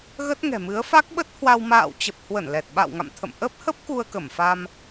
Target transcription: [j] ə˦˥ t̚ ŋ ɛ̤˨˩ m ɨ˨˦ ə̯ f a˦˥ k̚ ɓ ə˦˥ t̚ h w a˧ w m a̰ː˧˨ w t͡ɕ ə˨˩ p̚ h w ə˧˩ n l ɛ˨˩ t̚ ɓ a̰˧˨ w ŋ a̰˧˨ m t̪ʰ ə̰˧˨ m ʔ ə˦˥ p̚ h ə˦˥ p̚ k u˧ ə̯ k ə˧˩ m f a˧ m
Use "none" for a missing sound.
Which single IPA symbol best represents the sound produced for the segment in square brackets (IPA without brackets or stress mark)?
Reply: ɣ